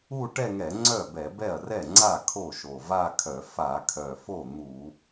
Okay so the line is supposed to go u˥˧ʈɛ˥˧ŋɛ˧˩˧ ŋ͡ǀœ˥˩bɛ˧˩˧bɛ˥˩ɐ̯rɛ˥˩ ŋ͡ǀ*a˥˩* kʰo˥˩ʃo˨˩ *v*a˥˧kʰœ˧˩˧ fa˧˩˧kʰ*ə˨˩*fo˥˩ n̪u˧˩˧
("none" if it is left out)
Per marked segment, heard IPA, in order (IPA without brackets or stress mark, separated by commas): a˥˩, v, œ˨˩